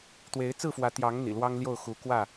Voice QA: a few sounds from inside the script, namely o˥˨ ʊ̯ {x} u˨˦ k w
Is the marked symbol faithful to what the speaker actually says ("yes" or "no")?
yes